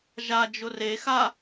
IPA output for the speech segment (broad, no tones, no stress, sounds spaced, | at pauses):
ʒ a d͡ʒ ʊ r e x a